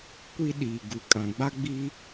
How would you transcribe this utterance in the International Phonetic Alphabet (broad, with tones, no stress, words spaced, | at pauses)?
kʷi˦ɗiː˨ ɡu˨kʼã˨ɡ͡ba˦ ɡ͡bi˦